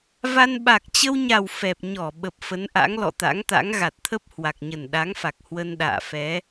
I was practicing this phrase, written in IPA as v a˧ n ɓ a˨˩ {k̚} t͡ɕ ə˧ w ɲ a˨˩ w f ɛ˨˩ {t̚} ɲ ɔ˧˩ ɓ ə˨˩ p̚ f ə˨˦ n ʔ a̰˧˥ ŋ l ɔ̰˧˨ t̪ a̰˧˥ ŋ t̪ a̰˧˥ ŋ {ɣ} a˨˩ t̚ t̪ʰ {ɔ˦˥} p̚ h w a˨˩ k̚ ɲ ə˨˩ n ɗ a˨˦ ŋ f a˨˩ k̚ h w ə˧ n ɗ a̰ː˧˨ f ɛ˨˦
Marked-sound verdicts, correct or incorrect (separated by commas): correct, incorrect, correct, incorrect